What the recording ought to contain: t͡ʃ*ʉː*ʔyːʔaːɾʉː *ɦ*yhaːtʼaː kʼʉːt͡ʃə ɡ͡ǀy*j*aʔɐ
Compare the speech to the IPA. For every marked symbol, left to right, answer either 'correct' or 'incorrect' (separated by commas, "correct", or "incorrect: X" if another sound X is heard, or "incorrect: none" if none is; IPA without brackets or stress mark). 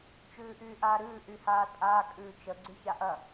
correct, incorrect: ʔ, incorrect: ç